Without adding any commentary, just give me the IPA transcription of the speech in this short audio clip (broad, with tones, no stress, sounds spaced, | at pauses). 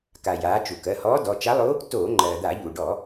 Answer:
k a˩ j aː˩˧ t͡ʃ u˩ k ɜ˩˧˩ h ɔː˧˥ d ɔ˩˧˩ t͡ʃ a˧˥ lˠ o˧˥ | t oː˧˩˧ ŋ͡ǃ ɜː˩ d̪ a˧˩˧ ʎ u˩ ɖ ɔ˧˩˧